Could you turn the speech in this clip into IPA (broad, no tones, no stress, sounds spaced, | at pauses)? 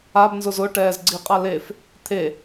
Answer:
a b n z ʊ z ʊ ʈ ɛː z ɡ͡ǀ i qʼ a l e f | t̪ʰ e